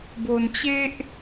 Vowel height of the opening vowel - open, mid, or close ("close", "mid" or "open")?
mid